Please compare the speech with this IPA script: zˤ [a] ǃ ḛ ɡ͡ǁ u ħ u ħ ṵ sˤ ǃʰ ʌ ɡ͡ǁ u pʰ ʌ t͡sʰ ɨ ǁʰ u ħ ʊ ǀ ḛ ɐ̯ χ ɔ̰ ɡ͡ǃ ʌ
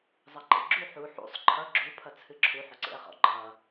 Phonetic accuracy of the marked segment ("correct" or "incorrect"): incorrect